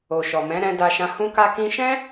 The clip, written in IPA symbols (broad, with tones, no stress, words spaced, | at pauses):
o˨ʃɔ˨mɛ̃˨˦ ɾɛ̃˧da˧ʃã˧ hũ˦ka˦ kĩ˧ʃɛ̃˦